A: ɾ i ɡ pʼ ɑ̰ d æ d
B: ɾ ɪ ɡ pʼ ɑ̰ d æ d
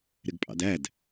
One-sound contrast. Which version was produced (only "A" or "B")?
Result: B